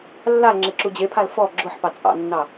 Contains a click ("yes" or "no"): yes